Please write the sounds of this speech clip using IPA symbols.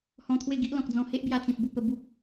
h ɔ̃˧ t̪ʰ w e˥˧ ɡ i˦ ʔ l ɔ̃˨ k̚ d͡z ɔ̃˧ h e˦ ʔ b j a˧ t͡s ĩ˨ p̚ b u˧ p ə˧ b u˦ p̚

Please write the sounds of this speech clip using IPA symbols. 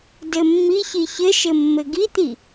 d ɘ mː i ç i ç ɘ ʃ ɘ mː ɘ ɡ i t̪ i

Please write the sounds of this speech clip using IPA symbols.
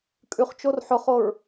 kʼ ʉ χ t͡ʃ o r ħ ʊ χ o ɹ

